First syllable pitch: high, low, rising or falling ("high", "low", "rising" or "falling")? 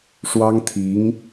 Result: high